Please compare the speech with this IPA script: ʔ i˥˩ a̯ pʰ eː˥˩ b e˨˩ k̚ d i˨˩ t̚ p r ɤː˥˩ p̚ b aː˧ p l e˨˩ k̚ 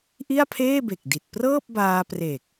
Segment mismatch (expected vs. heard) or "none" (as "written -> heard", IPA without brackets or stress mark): l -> r